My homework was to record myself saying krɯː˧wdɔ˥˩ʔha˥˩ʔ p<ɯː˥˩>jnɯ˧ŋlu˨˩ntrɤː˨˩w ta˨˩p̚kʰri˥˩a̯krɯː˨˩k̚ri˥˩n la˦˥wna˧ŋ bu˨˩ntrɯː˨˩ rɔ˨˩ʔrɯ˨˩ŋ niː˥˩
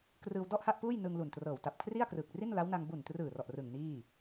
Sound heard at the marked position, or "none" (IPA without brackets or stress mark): uː˥˩